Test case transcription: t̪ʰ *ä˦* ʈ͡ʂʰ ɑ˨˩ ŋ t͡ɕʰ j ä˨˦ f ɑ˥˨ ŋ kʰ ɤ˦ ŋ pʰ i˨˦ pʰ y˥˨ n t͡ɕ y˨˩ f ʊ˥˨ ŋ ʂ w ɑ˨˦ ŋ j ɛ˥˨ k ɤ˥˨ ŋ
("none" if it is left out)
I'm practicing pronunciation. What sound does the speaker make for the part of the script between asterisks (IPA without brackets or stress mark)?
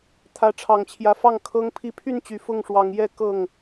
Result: ä˨˦